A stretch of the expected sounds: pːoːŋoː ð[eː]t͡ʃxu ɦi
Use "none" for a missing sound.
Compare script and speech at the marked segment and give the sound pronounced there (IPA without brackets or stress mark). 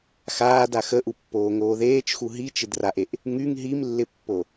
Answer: eː